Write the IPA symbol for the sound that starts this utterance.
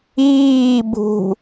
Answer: iː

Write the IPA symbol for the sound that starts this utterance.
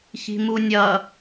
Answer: ç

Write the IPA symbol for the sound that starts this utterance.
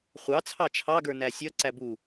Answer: χʷ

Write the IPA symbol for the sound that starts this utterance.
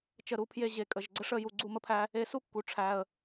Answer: t͡ʃ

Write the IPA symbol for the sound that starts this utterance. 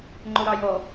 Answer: ŋ͡ǃ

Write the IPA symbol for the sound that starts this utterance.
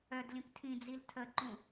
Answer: œ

